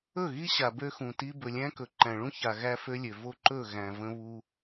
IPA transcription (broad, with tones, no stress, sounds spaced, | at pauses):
ɵ˦˨ ɣ i˦ ɕ a˨ b ø˦ x ũ˨ t i˦ b ɵ˨ lʲ æ̃˦ k ɵ˨ ǃ æ̃˨ ɭ ũ˦ ç a˨ ɣ æ˦ f ø˦ lʲ ø˨ v o˦ ǃ ɵ˦˨ ɣ æ̃˨ v ə̃˦ β u˦